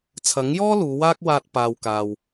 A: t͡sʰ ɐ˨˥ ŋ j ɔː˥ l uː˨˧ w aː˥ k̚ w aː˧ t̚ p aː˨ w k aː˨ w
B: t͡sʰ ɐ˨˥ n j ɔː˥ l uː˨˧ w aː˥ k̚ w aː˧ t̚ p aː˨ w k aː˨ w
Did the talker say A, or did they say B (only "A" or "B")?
A